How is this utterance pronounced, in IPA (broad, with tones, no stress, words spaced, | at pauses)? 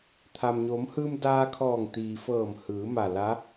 t̪ʰa˩mɲo˩˧mhɯː˧m daː˧kʰɔː˧˩ŋ t̪iː˩fɤː˧˩m hɯː˩˧ ma˧˩la˧˥